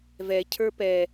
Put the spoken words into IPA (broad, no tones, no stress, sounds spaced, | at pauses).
v ɛ cʰ ə˞ p ɛ